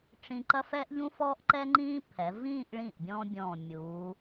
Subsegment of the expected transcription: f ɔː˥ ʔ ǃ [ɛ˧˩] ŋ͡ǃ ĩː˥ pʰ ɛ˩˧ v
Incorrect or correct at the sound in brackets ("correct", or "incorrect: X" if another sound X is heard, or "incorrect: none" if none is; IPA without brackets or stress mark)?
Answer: incorrect: ɛ˥